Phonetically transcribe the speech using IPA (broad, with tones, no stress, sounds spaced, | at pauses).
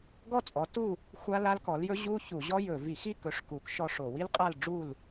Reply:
ɡ ɔ˥˨ t͡sʼ ɔ˨˥ t u˥˨ | xʷ a˦˥ l a˦˥ l k ɔ˨˥ l j ɵ˦˥ ʑ u˦˥ ç u˧˩˧ ʑ ɔ˦˥ j ɵ˧˩˧ v i˧˩˧ x i˥˨ k ɵ˨˥ ʂ k u˨˥ k ʃ ɔ˦˥ ʂ o˧˩˧ w i˦˥ l qʼ a˥˨ l ɖ͡ʐ u˥˨ l